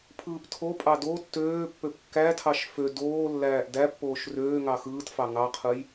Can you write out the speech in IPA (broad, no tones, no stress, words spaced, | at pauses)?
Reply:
pʰɯːptʰopʼɑ do tːøːpːøp kːætʰɑʃ fø doː lːæːʔdæpːoːʃ røːŋɑ xɯːtfɑ ŋɑqʰɯj